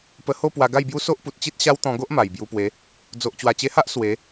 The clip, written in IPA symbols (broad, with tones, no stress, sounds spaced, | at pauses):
p ə˧ h o˥˧ p w a˧ ɡ a˥˧ j b j u˦ s o˦ ʔ p u˨ t̚ t͡ɕ i˦ t̚ ɕ a˦ w t̪ ɔ̃˧ ɡ o˦ ʔ m a˨˩ j b j u˧ p w e˨˦ | d͡z o˨ ʔ t͡ɕ w a˨˩ t͡ɕ e˧ h a˦ ʔ s w e˨˦